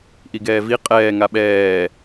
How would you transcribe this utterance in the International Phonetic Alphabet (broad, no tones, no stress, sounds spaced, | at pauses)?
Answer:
ʔ i ɡ ɛː v i qʼ ɛː ŋ a ɓ ɛː